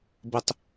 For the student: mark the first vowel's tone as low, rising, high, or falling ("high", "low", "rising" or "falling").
high